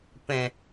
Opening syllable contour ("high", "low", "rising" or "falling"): low